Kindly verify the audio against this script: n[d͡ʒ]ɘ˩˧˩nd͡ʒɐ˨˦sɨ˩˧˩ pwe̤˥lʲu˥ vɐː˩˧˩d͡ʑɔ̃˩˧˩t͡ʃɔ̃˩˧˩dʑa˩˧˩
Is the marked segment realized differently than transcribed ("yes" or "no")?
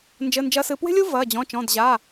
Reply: no